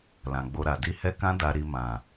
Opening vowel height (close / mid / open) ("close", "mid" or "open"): open